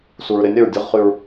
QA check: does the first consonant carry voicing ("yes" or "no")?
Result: no